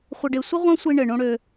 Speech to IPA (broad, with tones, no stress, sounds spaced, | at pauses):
χʷ ə˧ ɖ e˧ sʷ ɪ˦ ʁʷ ã˦ sʷ i˧ ɳ ɘ˨ ɳ õ˧ ɽ ø˧